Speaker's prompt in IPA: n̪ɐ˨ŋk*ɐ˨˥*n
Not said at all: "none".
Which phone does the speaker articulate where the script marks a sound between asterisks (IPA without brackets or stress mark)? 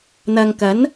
ɐ˨˥